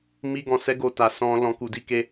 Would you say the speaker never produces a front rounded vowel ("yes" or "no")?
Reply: yes